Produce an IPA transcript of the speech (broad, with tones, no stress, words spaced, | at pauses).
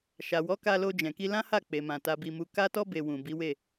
ʃa˨wɔ˨˦ka˧ lo˧d͡ʒɛ̃˨ki˧ lã˦ha˦˨ k͡pe˨mã˨ ta˧bi˧mu˧ ka˦tɔ˦ be˧ wũ˨bi˨˦we˦˨